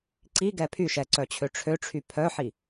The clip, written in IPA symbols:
ǀ i ɡ ɛ pʰ y ʃ ɛ ǀ œ t͡ɕʰ ø ʈ͡ʂʰ ø ʈ͡ʂʰ y pʰ œ ħ i

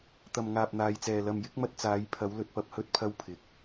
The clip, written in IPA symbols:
t̪ ɐ˨ m ŋ aː˨ p̚ n̪ aː˨ j t͡s ɛː˨ l ɐ˨ m j ɪ˨˥ k̚ m ɐ˧ t̚ t͡s aː˨˧ j pʰ ɐ˨˧ w l ɵ˧ t̚ p ɐ˧ p̚ h ɵ˥ t̚ pʰ ɐ˥ w pʰ ɪ˨ k̚

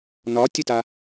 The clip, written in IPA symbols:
n ɒ tʲ ə t a

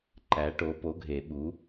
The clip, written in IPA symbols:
ǃ æ˨˥ ʈ o˨˥ p o˨˥ ɡʱ e˨˩˦ ɓ u˨˥

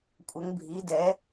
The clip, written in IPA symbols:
kʷʼ ə˨˥ ŋ bʱ i˨˥ d ɛ˨˥

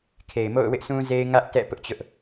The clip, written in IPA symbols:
kʰ e˨ ɪ̯ m o̰˦˨ ʊ̯ w ɪ˦ ʔ sʰ ũ˦ z e˦ ɪ̯ ŋ ä˦ ʔ t ɛ̰˦˨ p ʊ˦ ʔ t͡ɕ ʊ˦ ʔ

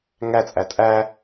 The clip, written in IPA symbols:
ŋ æ t͡sʼ æ tʼ æ

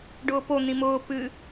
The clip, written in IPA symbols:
ɖ ʊː p o n̪ ĩ m ʊː p ɨ

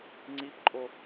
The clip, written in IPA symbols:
ŋ͡ǀ i p ǃʼ o

